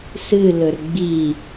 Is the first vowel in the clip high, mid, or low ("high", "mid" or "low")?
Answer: high